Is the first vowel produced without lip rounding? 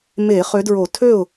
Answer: yes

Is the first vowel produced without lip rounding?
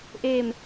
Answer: yes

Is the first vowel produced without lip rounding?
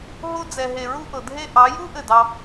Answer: no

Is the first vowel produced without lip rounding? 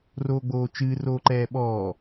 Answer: no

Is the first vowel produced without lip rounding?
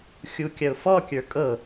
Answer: no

